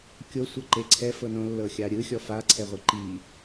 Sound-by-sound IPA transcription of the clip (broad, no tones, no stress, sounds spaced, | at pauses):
kʲ o sʷ ɤ ǃ e ǀʰ ɛ f ɤ n õ lː ɤ xʲ a ɾʲ ɯ xʲ ɔ f a ǀʰ ɛ ʁʷ ɯ ǃ i